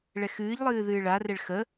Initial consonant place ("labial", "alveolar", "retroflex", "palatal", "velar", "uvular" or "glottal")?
retroflex